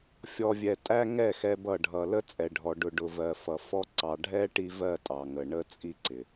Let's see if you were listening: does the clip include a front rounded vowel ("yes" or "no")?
no